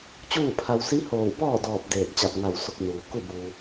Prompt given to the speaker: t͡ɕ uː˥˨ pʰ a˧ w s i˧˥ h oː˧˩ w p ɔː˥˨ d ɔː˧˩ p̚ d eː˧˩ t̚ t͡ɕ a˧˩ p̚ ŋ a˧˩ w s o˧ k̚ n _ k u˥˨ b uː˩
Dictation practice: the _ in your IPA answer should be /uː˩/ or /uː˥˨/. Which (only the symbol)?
uː˩